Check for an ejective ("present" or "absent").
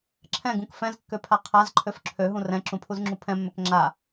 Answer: absent